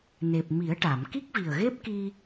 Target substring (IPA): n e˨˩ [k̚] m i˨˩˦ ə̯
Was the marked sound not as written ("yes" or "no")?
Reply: yes